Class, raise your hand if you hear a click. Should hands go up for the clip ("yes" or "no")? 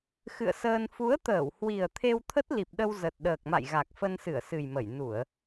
no